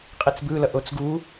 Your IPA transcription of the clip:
qʼ i t͡s b ɯ l ʌ ʔ o t͡s ɡ u

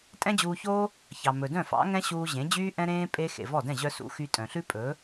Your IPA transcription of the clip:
tʼ ɛ̃˦ d͡ʑ uː˧ ç oː˦ | ç ɑ˨ m ɵ˨ d œ̃˦˨ f ɑ̰˨˦ ŋ ɛ̃˦ ɕ uː˧ ʑ ẽ˨˦ d͡ʑ yː˦ ʔ ɛ̃˦ ɾ ẽː˦ pʼ e˧ x ḛ˨ v ɔ˦˨ d ɛ̃˦˨ ʑ œ˧ s ṵ˨˦ x y˧ tʼ œ̃˨ ɬ ʉ˦ pʼ ɵː˨˦

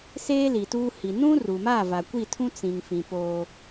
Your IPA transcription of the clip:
s eː˦ l i˨ t uː˦ h i˨ n ũ˦ r u˨ m a˦˨ v a˨ kʷ i˦˨ tʰ ũ˦ t͡s ĩ˨ ŋ f ĩ˨ p oː˦

